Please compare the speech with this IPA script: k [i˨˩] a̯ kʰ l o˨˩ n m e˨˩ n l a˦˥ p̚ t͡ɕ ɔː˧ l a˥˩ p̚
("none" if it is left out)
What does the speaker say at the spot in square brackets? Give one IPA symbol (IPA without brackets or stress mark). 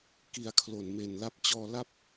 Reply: i˧